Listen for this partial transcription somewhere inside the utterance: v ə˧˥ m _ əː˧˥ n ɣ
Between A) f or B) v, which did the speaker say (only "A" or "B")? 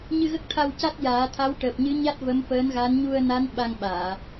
A